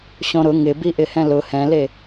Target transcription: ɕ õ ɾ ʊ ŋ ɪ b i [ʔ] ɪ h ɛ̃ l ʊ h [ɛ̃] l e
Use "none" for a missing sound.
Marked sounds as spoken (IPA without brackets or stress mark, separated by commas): ʔ, ɛ̃